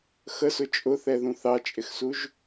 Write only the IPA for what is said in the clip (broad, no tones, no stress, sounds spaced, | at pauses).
x ə s ʊ t͡ʃʼ ʊ θ ɛ ð ũ θ ɑ t͡ʃʼ ɪ x s u ʒ